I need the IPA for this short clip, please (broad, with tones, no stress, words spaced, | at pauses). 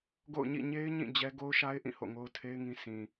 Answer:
ɡo̰˦˨ʊ̯ɲḭ˦˨ ɲe˦ɪ̯ɲĩ˦˨ d͡ʑɛ˦ ɡo˦ʊ̯ʃa˦ɪ̯ʔĩ˦˨ ho̰˦˨ŋo˦ʊ̯tʰe˦ɪ̯ŋĩ˦ sʰĩ˨